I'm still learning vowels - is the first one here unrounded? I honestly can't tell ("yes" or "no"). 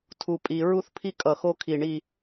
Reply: no